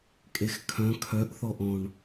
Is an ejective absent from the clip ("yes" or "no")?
no